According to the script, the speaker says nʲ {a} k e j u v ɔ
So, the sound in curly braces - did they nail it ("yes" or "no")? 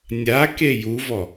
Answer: yes